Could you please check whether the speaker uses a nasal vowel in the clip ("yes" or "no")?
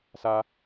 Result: no